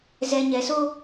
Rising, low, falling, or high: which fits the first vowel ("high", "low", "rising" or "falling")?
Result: low